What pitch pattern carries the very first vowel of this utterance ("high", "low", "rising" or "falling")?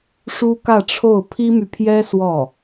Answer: high